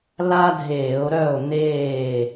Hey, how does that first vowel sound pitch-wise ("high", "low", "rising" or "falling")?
high